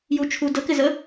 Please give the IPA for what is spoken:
jut͡ʃʰu dəkɪzə

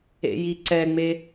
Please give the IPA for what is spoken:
ḛjiǀɛŋ͡me

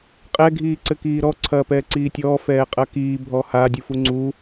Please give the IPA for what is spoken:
qʼɛ ɡʱiːǀɘkiːɾɔ ǀʰɐːpɛːǀiːtʲɔː fɛːqʼɐkiː bʱɔha dʲufuŋ͡ǀu

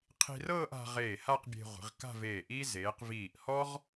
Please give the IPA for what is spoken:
qʰi̤˧rɤː˥˧ʔ a̤˧ ʁeː˧˩ha˥˧qbʲe̤˧ ʁʷi̤˩˧ʁka̤˥˧veː˧˩ʔiː˥ zeː˩˧qviː˧˩ʔ hɔ˥ʁ

